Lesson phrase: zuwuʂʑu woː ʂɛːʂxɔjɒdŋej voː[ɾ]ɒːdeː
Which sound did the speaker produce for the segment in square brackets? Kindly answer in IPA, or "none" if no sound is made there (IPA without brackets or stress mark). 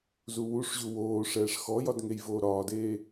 ɾ